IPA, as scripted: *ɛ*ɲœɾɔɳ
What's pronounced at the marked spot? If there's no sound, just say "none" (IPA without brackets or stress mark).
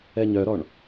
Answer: ɛ